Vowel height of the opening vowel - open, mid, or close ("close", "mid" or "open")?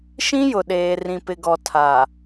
close